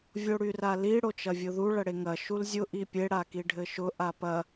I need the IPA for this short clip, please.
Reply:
vʲ o ɽ y r a l i ɽ o t͡ʃ ɐ vʲ ʊ ð u ɭ ɐ ɽ e ŋ ɐ ʃ u l zʲ ʊ ʔ i pʲ e ɽ a k i ɖʱ ɘ ʃ ʊ ʔ a p ɐ

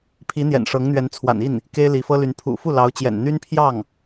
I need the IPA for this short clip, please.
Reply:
pʰ i˧˥ n̪ j ɛ̰˨˩ n ʂ ɤ˧˥ ŋ n̪ ɥ ɛ˧˥ n t͡sʰ w a̰˨˩ n i˥˩ n | k e˥ ɪ̯ l i˧˥ f ɤ˥ l y˧˥ n pʰ ṵ˨˩ f u˥˩ l ɑ˧˥ ʊ̯ t͡ɕ j ɛ̰˨˩ n n̪ y˥ n pʰ j ɑ˥˩ ŋ

